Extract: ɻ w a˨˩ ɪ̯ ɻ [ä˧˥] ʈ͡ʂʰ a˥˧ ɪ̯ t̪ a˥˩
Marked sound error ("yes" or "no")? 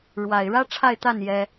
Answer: yes